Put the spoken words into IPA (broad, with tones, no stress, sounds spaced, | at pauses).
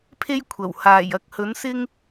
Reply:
pʰ e˥ j kʷʰ ɐ˨˩ w h aː˨˩ j ɐ˨˥ k̚ h ɵ˨˥ n s ɪ˥ ŋ